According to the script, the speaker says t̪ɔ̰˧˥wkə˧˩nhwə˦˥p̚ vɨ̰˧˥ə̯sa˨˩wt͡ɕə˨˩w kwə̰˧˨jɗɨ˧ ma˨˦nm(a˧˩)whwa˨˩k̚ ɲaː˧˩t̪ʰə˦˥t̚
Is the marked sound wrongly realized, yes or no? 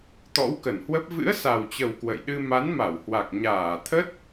no